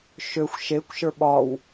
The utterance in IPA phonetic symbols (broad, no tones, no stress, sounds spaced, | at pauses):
ʃ ø xʷ ʃ e kʷ ʃ ə˞ ɓ ɒ w